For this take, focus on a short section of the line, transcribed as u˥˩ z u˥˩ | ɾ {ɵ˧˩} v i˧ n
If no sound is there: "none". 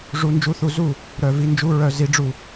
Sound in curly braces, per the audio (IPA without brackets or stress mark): œ˧˩